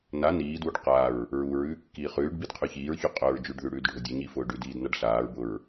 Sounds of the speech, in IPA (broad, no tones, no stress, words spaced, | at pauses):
na niːdwuɖ qaɹ | ɹuɹʉː kːiːχʉːɖbid qʰʉçiːɹçʉ qʼʊːɹd͡ʒʉɖðʉ ɽʉːdɖʱʊdʲʊɲi fʊːɖʉdiːd naɖɬaːɹbʊɹ